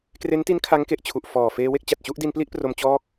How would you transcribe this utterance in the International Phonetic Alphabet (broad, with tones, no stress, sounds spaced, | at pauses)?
k r e˦˥ n t i˦˥ n kʰ a˦˥ ŋ k e˨˩ ʔ t͡ɕʰ u˨˩ ʔ f ɔː˨˩ f eː˧ w e˥˩ k̚ t͡ɕ a˨˩ t̚ t͡ɕ u˥˩ ʔ d i˧ n p l i˥˩ ʔ p r o˧ m t͡ɕ ɔː˥˩ k̚